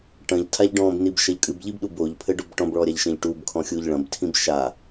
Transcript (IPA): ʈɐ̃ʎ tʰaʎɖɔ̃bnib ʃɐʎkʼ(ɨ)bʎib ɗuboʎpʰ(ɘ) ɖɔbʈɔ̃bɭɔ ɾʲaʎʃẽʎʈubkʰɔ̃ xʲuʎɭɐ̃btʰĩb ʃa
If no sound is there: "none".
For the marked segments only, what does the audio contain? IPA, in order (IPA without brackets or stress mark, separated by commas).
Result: ɨ, ɘ